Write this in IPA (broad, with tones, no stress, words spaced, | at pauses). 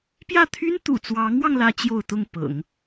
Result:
pjä˥˩t̪ʰy˥n t̪ṵ˨˩t͡swɑ˧˥ŋwɑ˧ŋ lä˥t͡ɕjo˥˧ʊ̯t̪ʊ˥˩ŋ pɤ̰˨˩˦ŋ